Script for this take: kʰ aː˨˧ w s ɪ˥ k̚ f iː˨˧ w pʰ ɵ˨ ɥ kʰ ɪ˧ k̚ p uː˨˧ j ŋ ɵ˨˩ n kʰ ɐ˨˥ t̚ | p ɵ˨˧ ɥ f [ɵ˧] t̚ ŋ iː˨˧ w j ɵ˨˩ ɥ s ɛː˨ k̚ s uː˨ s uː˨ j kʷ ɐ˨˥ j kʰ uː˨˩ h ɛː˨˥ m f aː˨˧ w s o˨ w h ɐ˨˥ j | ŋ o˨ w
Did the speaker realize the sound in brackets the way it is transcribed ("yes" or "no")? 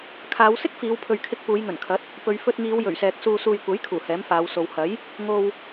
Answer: yes